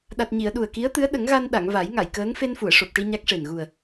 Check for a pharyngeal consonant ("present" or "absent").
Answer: absent